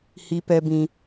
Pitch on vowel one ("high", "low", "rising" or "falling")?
high